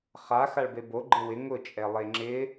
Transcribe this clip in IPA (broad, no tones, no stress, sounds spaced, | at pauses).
χ a x a ɭ b e b o ɡ͡ǃ ɪ w ɪ ŋ ʊ t͡ʃʼ ɛ lˠ e ŋ͡ǁ ɪ